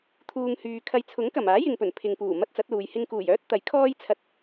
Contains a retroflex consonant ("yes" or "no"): no